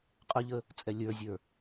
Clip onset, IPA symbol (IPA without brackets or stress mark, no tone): qʼ